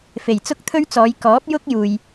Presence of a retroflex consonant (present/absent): absent